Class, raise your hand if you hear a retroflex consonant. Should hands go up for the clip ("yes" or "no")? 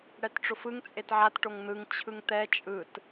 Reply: yes